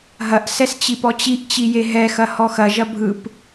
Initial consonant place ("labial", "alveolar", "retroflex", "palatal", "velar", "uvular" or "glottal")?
glottal